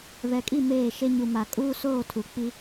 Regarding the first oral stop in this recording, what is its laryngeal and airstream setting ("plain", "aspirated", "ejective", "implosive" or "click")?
ejective